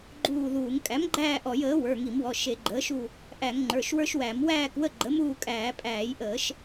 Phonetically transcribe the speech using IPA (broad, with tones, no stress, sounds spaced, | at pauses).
ɡ͡ǃ uː˦˨ ð uː˧˩˧ ŋ kʼ æ˩˥ m ɡ͡ǃ æː˦˨ ʔ ɔ˧˩˧ j əː˩˥ w ə˞˩˧˩ ŋ i˧˩˧ m w ɔ˩˧˩ ʃ e˧˩˧ ɡ͡ǃ əː˩˥ ʃ u˦˨ | ʔ æ˧˩˧ ŋ ŋ͡ǃ ə˞˩˧˩ ʃ w ə˞˦ ʃ w æ˧˩˧ m w æː˦˨ k w ə˦˨ ɡ͡ǃ ə˩˥ m uː˦˨ kʼ æː˧˩˧ pʼ æː˧˩˧ j ʔ əː˧˩˧ ʃ